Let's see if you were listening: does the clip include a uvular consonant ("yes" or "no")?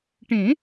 no